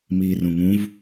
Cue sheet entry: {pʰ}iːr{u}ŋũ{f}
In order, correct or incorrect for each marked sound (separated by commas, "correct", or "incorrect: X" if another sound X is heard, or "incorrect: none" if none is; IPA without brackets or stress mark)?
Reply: incorrect: m, incorrect: ũ, incorrect: v